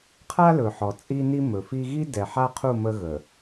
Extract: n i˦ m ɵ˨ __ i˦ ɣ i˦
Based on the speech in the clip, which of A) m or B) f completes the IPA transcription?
B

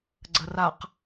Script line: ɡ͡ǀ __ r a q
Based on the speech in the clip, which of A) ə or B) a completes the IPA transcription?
A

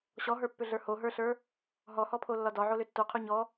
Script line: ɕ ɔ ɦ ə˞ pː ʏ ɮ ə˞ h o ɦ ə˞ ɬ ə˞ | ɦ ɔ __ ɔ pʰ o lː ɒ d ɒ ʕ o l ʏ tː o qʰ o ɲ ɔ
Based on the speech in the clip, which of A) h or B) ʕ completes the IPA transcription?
A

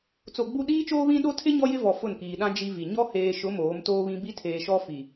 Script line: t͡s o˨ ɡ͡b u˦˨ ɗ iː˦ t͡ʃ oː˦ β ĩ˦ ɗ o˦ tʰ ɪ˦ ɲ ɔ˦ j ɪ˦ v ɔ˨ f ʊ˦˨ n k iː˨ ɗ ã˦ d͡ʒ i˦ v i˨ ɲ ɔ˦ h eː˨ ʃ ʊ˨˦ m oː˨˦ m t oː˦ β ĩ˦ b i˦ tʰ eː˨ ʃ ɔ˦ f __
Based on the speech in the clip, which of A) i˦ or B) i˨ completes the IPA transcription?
B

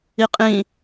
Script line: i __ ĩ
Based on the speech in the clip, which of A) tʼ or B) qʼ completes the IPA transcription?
B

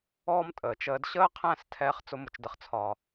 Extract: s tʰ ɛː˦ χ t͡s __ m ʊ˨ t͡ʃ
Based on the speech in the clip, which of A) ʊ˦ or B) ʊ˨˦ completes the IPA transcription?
A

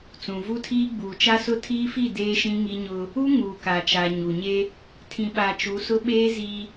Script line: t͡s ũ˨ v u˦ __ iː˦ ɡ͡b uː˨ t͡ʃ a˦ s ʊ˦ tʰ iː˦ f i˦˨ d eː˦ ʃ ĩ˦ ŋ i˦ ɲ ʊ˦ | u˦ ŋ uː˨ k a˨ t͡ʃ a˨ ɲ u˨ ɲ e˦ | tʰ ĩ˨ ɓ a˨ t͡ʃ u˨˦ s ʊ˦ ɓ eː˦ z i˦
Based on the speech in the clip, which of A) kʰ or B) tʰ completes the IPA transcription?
B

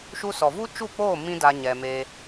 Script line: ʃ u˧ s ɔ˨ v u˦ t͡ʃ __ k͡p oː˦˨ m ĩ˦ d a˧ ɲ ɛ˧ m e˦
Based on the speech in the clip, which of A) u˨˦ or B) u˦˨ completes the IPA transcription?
B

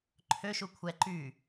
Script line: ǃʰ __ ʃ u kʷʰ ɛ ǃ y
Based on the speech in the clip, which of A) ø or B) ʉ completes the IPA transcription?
A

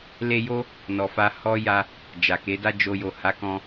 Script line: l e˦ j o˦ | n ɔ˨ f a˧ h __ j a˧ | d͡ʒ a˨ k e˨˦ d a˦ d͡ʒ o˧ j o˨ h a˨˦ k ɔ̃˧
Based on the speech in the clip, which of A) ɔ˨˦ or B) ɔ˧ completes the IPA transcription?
B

